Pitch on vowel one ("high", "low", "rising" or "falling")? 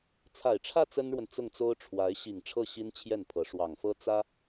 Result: low